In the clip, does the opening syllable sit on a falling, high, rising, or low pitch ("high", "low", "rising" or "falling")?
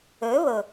rising